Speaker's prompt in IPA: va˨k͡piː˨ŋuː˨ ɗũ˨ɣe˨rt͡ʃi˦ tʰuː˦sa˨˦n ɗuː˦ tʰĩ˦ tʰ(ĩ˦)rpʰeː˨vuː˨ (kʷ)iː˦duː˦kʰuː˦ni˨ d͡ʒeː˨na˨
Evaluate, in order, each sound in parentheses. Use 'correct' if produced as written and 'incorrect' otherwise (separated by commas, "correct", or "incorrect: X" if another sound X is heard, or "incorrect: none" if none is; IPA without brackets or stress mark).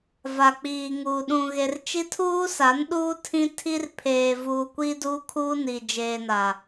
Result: incorrect: i˦, correct